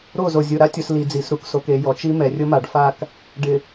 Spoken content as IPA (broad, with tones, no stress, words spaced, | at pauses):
ɾo˦˨zo˨ zʲʊ˨ ɾa˦tʲʊ˨s li˨d͡zi˨s ɾu˨kso˨k e˨jɔ˨t͡ʃi˦ mɛ˨rʲʊ˦ma˨ɖfa˦˨k | ɖɪ˨